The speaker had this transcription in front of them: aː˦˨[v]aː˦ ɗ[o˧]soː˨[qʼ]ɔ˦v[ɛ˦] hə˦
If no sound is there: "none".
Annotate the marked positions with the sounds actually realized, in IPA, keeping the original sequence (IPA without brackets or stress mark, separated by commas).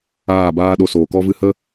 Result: b, o˧, k, ɨ˦